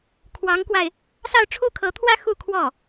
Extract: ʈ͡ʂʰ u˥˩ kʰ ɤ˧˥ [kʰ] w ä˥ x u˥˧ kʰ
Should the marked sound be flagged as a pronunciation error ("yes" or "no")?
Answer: yes